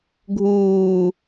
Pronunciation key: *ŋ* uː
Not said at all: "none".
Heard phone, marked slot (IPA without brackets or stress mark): ɡʱ